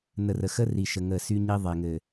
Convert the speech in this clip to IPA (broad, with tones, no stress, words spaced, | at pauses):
nə˨rə˨ xə˦ri˨ʃə˨ ŋə˦˨sy˦ɲi˦ ðˤe˨ŋɘ˨